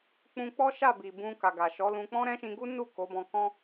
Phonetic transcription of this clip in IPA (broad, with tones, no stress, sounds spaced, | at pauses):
k͡p ũ˧ k͡p ɔ˦ ʃ a˦˨ b i˨ b ũ˧ k a˨ ɡ a˨ ʃ ɔ˨˦ l ũ˧ k͡p ɔ̃˦ ɾ ɛ̃˦ ʃ ĩ˧ ɡ u˦ n u˦˨ k o˨˦ b ɔ̃˧ k ɔ̃˦